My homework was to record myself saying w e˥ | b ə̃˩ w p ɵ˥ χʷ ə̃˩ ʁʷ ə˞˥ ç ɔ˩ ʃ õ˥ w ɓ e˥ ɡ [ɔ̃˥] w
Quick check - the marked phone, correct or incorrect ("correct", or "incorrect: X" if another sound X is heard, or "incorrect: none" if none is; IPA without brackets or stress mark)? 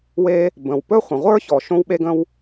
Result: incorrect: ə̃˥